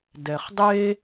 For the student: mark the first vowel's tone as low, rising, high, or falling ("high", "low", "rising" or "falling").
low